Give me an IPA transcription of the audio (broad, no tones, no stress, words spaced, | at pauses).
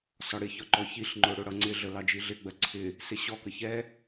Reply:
sɒɽɪçɒ ǃɔçiɬŋ͡ǃʊ ɽʊɽʌ ŋ͡ǀɪɮə lɑd͡ʒiɮɪɡ͡bɜ ǀʰɪ | sɪɕɔkə çɛ